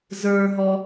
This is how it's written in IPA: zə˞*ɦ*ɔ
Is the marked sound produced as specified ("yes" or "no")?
yes